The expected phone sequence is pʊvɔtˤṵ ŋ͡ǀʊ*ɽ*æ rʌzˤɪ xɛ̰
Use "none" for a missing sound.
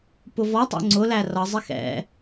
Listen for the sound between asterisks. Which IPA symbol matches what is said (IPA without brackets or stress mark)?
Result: l